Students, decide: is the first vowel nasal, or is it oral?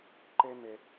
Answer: oral